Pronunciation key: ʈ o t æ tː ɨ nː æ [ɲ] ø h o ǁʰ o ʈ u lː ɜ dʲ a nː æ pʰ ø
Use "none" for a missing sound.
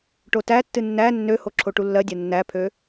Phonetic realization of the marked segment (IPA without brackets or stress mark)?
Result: nː